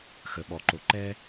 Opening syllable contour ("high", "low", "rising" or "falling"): low